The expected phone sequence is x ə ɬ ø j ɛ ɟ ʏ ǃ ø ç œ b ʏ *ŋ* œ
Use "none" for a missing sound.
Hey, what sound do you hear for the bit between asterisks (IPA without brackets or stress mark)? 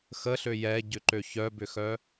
x